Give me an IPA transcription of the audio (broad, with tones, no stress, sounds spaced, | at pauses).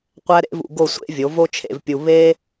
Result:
qʷ æ˦ ɾ ḛ˦ v ṵ˧ ɡ o˦˨ sʷ ḛ˦ vʲ o˨˦ v o˦ t͡ʃʰ ḛ˧ v pʲ u˧ β e˦